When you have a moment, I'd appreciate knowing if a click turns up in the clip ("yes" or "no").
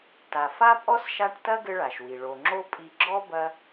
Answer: yes